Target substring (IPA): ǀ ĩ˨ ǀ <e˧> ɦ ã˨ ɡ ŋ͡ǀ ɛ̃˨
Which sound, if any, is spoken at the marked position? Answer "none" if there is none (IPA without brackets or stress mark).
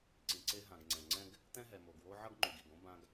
e˧